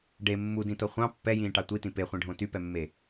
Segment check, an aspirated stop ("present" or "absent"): absent